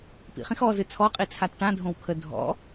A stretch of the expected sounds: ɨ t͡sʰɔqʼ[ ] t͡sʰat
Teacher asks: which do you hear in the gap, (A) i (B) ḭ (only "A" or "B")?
A